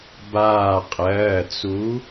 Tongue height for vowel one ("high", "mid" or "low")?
low